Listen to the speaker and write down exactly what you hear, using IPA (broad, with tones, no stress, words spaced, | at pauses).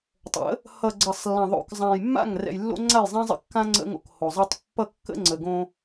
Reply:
tˤə̰˨˦ | hʌ˨ ɡ͡ǀʌ˨sˤlːã˨ðˤo̰˨k zˤã˨jmːa̰˦˨ŋ rɛ̰˨jlːo̰˦ŋ͡ǀa˦˨j zˤɛ̃˦zˤə̰˦kːã˦ ŋ͡ǀə̰˦ŋo̰˨kho˨zˤʌ˦tˤ pːʌ˦kːə̰˦ŋ͡ǀə˨ ɡõ˦